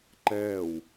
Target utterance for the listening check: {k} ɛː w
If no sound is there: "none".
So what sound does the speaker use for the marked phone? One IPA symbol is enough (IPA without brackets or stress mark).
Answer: ǃ